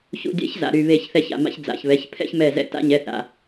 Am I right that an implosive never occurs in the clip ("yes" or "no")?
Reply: yes